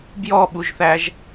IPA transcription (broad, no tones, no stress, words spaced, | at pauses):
bjɔɓuʒθæʒ